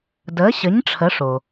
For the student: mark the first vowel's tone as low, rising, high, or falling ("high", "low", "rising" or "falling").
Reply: rising